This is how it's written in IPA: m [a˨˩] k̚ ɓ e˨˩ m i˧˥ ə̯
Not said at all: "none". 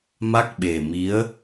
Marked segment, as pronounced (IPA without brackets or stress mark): a˦˥